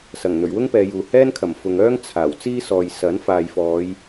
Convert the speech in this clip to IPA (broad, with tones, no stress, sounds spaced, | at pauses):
s ɐ˨˩ ŋ n̪ ɵ˨˩ ɥ w ʊ˥ ŋ p ɛː˨˧ j uː˨ h ɛː˥ n kʰ ɐ˨˩ m f ʊ˨ ŋ œː˥ ŋ t͡sʰ aː˨˩ w t͡s iː˥ s ɔː˨ j s ɐ˨˥ n f aː˨ j f ɔː˨˧ j